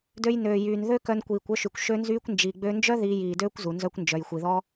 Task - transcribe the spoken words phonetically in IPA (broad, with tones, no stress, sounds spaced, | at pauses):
d ø˧ j n øː˨ j yː˨ n ð ø˦ k œ˧ n kʷ iː˨ kʷ œ˦ ʃ y˨ kʷ ʃ ø˦ n z yː˦ kʷ n d͡ʒ i˨ ɡ͡b ø˧ n d͡ʒ œ˦ ð iː˧ j iː˨ d øː˦ kʷ z u˨ n z œ˦ kʷ n d͡ʒ œ˨ j xʷ i˨ ð ɔ˦